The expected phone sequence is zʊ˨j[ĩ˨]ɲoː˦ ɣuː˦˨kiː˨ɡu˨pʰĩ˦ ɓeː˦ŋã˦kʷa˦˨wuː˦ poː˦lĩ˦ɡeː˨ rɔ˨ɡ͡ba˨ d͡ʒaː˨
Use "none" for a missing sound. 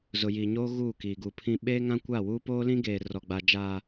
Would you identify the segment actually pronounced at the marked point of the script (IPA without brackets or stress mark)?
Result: i˨